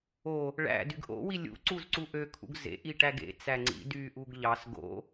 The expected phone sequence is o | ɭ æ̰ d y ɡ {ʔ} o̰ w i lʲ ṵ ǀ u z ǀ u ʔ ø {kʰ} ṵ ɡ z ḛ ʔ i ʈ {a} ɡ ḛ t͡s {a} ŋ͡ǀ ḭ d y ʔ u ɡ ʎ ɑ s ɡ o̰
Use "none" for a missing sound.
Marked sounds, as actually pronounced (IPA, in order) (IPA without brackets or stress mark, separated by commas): ʔ, kʰ, æ, æ